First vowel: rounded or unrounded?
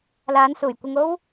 unrounded